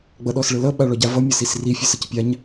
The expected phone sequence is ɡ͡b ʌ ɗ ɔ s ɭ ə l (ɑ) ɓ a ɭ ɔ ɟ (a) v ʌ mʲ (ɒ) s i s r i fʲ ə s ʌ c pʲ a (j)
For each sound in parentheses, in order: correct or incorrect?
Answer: incorrect: ʌ, correct, incorrect: ʌ, incorrect: ɲ

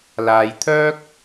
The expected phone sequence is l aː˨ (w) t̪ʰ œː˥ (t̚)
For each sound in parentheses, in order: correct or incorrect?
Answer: incorrect: j, incorrect: k̚

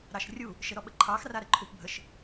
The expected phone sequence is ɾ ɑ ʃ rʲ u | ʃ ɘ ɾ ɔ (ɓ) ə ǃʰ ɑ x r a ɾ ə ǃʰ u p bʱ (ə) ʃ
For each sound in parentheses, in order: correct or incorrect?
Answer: correct, correct

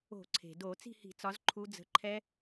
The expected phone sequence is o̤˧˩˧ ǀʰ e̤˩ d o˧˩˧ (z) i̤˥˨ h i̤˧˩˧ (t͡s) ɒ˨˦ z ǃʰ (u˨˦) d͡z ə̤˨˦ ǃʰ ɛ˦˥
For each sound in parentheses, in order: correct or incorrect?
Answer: incorrect: t͡s, correct, correct

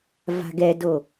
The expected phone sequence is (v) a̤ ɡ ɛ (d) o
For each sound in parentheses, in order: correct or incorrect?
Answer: correct, correct

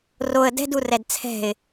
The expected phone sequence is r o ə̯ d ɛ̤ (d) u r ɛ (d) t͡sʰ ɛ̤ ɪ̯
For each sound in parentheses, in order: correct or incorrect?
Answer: correct, correct

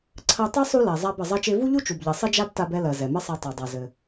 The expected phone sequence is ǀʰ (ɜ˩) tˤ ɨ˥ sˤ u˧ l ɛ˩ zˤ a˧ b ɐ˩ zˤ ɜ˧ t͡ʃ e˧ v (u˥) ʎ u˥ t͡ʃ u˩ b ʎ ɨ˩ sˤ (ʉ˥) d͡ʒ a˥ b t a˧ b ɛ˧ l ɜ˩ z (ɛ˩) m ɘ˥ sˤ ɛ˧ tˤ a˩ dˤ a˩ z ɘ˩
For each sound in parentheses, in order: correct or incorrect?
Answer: incorrect: ɜ˧, correct, incorrect: ɘ˥, correct

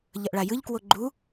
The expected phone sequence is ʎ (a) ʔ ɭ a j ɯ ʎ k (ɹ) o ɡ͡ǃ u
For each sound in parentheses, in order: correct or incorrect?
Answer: incorrect: ʌ, incorrect: w

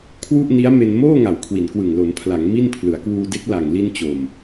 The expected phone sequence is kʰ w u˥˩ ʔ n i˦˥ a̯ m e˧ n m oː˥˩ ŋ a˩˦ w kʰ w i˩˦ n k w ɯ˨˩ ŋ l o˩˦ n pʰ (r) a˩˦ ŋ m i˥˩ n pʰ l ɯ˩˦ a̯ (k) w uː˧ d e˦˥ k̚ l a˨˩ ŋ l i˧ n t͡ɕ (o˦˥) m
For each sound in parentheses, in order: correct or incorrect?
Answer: incorrect: l, correct, incorrect: o˨˩

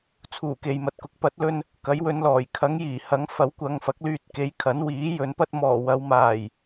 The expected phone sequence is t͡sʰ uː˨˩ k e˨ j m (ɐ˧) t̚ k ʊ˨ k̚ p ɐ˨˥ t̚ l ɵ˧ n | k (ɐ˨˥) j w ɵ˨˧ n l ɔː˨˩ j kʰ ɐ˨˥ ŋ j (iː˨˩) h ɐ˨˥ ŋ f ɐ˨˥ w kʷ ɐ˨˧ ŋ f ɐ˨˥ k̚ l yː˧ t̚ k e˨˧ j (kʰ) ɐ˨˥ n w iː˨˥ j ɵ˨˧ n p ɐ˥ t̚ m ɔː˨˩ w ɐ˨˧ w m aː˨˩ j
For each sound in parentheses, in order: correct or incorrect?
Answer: incorrect: ɐ˨, correct, correct, correct

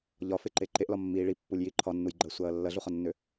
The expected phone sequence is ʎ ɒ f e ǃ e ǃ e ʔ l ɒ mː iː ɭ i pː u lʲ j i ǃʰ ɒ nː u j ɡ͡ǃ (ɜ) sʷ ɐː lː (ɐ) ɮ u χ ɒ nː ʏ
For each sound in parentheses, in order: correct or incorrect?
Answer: correct, correct

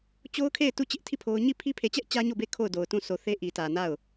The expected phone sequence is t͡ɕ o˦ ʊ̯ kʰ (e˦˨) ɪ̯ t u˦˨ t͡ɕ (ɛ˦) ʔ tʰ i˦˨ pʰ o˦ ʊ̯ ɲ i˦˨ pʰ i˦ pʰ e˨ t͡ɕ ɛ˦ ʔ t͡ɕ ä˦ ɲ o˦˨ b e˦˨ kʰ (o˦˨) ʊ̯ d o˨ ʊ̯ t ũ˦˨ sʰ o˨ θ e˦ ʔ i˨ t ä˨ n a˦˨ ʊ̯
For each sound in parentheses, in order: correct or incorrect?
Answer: correct, incorrect: ɪ˦, correct

